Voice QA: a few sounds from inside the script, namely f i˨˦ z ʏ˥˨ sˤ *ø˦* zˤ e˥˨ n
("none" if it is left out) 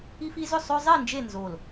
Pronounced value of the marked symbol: ø˦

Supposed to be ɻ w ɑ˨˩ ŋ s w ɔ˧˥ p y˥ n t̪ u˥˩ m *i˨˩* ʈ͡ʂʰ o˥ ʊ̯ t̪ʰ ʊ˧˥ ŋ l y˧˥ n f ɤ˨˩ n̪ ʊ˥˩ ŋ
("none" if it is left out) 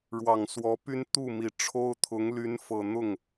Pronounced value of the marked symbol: i˨˩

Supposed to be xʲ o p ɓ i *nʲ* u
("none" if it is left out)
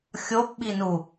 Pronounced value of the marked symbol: n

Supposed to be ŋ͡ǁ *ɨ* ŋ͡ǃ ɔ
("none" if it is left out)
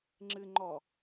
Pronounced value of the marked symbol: ɨ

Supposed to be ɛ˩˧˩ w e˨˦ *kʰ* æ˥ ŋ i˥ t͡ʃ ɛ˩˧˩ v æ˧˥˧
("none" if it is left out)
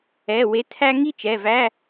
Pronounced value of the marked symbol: tʰ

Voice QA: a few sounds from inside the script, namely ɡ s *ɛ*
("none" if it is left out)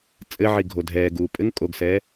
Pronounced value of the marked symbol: ɛː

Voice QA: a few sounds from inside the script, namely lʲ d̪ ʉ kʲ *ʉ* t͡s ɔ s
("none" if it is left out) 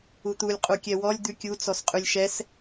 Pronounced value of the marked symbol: u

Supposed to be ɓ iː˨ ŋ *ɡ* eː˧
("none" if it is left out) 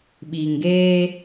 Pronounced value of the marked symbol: ɡ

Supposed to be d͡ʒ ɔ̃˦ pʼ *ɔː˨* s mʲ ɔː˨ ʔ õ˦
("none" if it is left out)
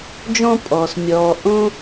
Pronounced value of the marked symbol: ɔː˨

